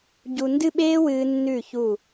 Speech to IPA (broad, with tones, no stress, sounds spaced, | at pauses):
ɟ u˧ n d ɨ˥˧ ɓ eː˥ w ɨː˧ nː ʉ˧˩ ç u˧˩